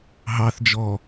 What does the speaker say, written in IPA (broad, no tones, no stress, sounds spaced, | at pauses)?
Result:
ɦ ɑ θ d͡ʒ ɔ